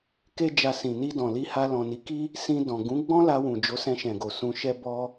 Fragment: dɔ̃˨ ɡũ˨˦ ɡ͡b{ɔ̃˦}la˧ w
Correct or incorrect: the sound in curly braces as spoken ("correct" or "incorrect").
correct